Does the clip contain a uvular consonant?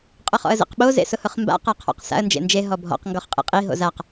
yes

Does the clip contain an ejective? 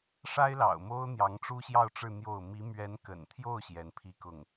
no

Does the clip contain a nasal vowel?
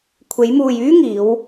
no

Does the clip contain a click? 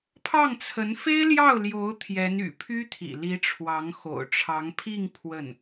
no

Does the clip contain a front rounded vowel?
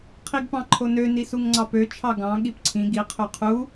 yes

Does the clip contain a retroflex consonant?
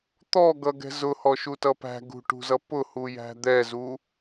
yes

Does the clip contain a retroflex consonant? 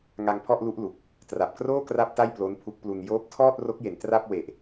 no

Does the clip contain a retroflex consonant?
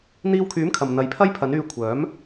no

